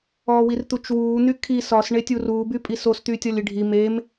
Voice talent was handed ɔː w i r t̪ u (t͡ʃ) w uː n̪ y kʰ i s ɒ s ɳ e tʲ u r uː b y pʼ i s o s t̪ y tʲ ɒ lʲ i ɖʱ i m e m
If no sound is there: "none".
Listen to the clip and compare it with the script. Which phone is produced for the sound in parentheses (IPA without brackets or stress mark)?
t͡ʃ